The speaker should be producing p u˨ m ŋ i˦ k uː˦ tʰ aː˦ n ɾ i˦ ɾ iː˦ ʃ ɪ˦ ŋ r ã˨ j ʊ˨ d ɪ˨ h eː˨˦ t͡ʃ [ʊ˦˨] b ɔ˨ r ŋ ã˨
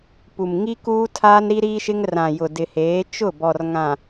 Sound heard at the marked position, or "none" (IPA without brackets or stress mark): ʊ˦˨